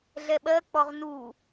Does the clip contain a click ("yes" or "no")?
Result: no